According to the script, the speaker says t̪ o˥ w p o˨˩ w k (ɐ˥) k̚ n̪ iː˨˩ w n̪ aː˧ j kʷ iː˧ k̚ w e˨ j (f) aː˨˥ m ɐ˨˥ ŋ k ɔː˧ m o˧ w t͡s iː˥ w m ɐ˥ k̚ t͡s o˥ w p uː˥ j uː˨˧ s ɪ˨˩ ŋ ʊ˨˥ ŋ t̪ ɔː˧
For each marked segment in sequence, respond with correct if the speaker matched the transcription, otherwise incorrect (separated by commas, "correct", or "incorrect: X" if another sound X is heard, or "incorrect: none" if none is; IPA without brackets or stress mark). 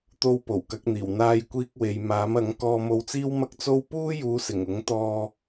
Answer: incorrect: ɐ˨˥, incorrect: m